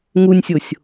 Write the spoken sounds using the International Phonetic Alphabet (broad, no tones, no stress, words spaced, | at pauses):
ŋunʲsʲosʲ